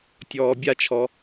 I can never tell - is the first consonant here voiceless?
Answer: yes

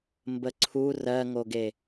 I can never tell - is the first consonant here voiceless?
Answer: no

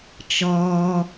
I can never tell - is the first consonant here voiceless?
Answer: yes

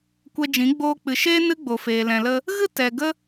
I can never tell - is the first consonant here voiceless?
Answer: yes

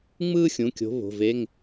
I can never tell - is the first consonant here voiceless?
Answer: no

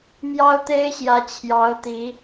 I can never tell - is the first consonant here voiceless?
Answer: no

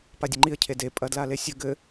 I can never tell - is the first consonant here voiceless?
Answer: yes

